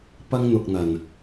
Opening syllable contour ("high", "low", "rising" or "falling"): high